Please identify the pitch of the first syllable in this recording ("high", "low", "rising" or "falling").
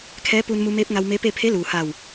rising